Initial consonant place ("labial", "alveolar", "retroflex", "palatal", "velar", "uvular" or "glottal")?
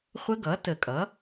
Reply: uvular